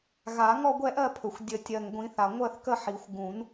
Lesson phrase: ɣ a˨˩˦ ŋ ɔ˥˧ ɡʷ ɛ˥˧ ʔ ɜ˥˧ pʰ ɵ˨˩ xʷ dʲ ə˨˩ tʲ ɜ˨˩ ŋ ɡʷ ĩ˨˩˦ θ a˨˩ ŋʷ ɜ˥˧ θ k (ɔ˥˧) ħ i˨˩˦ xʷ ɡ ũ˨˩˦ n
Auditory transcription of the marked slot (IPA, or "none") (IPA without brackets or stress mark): ə˥˧